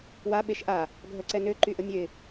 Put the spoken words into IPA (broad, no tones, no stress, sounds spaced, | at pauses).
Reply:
w a ɓ e ʃ ʔ a | ɡʱ œ ǀ ɛ n ø ǃ y ʔ ə mʲ ø ɪ̯